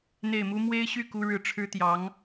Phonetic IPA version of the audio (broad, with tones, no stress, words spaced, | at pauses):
n̪e˥˩ɪ̯mu˥ mwe˥ɪ̯ɕy˥˩ ku˥ɻɻ̩˥˩ ʈ͡ʂʰɻ̩˥t̪jɑ˧˥ŋ